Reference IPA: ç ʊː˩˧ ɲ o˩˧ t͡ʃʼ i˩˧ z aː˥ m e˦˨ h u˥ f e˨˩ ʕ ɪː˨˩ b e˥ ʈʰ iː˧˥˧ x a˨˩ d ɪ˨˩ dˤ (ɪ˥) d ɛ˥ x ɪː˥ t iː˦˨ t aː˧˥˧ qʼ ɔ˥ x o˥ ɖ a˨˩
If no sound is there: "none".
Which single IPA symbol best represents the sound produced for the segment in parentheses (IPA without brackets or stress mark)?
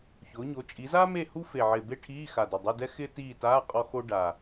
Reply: ɪ˧˥˧